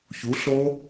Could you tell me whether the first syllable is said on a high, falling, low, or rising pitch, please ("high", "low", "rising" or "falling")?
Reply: rising